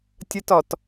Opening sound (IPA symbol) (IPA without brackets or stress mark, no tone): tʲ